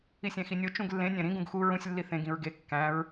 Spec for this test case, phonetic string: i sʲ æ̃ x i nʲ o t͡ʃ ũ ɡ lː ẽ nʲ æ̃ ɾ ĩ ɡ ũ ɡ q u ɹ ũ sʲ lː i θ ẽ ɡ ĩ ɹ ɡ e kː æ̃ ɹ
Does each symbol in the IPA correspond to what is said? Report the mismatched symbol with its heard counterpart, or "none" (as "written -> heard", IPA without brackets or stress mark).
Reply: q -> x